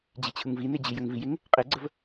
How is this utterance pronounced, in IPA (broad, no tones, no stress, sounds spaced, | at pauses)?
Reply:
d͡ʑ i t͡ɕʰ ɯ ŋ v i n e d͡ʑ i j ə ŋ v i j e ŋ | qʼ e ɡ͡ǀ ə v